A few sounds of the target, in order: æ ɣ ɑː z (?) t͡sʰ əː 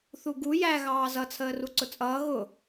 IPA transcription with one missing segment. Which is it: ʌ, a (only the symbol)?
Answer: ʌ